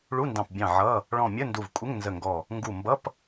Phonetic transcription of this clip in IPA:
ɭu˧˥˧ndɑ̃˧˩pbʲɑ̃˧˩ ʕʌ˧˥˧ | ɭɔ̃˧˩mʲə˧˥˧ ndu˧˩vkʷʼɪ˧˥˧ŋnzə˧˩ŋɡɔ˧˩ | ŋɡu˧˩mbʌ˧˥˧p

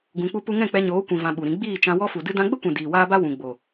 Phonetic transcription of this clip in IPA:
ɡũ˧k͡pu˦pu˦ ŋɛ̃˦˨k͡pɛ˧ɲoː˨˦ kʷĩ˧vã˧ɓu˨ɾĩ˧ ɡ͡biː˦˨t͡ʃã˧ wɔ˦fu˨ dɨ˧dã˧ɡ͡bə˦kʷɛ̃˨ diː˨waː˦ba˦ wũ˨ɡ͡bo˨

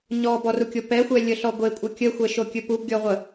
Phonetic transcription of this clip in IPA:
ɲɔbɔrukʲo pɛxʷɛlʲəɬɔ ɡʷekʷʼə kʲəxʷɛʃokʲɵ pubɡʲɔʁʷə

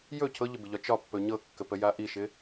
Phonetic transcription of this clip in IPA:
jɵ cʰɤʎəbɪʎɒ t͡ʃɒpːɵ ɲɤkːəpəja ʔiʃɪ

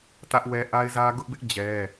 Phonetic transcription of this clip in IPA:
tä˦ʔwɛ˦ ʔa˦ɪ̯zä˦ ɡʊ˦ʔbɪ˦ʔ d͡ʑɛ˦

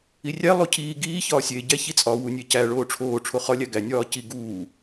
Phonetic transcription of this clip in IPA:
irʲæ lˠocʰiː ɡiː çɒːsʲe ɟæçit͡sʼɒ wunʲecæ ɭoːʈ͡ʂʰoː ʈ͡ʂʰoχɒ lʲæɡæ nʲɒːci ɡuː

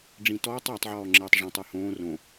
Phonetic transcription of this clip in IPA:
ɖ͡ʐĩtɔːtˤ ɐːtˤʕɔː ŋ͡ǁɘːtˤʐɔ̃tˤ øhõː rõ

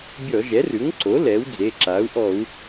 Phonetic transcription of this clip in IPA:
bʲɔ˧˩˧ʒɛ˩˥rʉ˩˥ŋǀo˩˥ lɛː˩˥wd͡ze˩˧˩ǁaː˩˥u̯ ʔɔ˧˩˧u̯

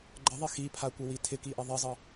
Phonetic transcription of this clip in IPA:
ɡ͡ǃəðˤɪ xipʰakʷəwi tʰɪkiʔɪ ðˤɪzˤə

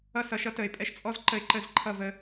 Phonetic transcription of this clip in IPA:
ʌ˦sʌ˨˦ʃ ʌ˦tə˨ɪ̯ pʼɛ˧ʃt͡sʼɔ˦zǃə˧ɪ̯ǃə˦˨z ǃʰʌ˦˨və˧

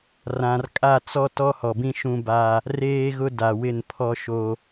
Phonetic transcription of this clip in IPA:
rã˨r kʼa˦˨t͡sɔ˦ tɔ˦hɔ˨bĩ˦ ʃũ˦ba˦ | reː˦ɣʊ˦ da˨wɪ˦˨npʰɔ˦ ʃo˦

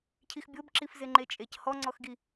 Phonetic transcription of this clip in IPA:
cʰixbʲobǁif zeŋ͡ǃet͡ʃʼec hɔŋ͡ǀɔxɡi

